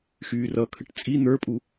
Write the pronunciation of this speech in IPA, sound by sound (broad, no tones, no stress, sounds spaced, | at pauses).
x yː r ʌ kʰ ə ʈ t͡sʼ i n̪ ə˞ pʼ u